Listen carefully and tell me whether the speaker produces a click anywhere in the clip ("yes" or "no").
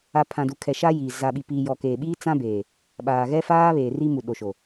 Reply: no